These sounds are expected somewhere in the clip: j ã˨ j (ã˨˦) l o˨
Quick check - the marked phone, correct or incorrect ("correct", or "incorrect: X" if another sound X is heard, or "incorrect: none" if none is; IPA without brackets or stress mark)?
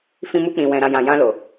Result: incorrect: ã˧